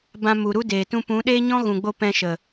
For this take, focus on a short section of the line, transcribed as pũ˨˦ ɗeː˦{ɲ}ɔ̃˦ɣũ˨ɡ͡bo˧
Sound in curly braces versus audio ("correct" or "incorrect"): correct